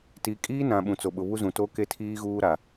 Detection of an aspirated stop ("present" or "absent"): present